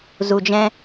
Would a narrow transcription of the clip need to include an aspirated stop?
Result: no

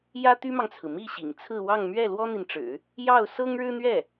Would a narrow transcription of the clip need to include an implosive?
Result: no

